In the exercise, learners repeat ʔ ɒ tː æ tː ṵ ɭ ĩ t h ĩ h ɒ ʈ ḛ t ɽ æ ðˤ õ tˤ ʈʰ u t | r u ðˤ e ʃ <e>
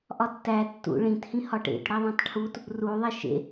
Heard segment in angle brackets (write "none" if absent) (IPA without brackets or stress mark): ḛ